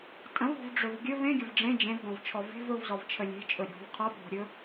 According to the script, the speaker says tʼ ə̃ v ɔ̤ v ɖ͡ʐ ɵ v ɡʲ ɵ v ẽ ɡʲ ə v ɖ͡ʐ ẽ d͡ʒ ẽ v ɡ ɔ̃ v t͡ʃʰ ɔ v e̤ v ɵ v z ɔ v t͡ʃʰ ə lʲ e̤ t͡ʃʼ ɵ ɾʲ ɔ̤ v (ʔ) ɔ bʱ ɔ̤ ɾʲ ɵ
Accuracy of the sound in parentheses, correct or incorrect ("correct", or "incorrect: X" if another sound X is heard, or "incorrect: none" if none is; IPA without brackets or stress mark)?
incorrect: qʰ